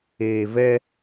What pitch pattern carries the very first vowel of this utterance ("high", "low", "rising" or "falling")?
low